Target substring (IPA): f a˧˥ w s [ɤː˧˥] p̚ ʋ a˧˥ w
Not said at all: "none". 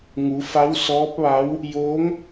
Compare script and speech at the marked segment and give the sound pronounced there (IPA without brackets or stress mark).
ɔː˧˥